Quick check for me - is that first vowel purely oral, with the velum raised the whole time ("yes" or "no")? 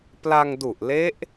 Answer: yes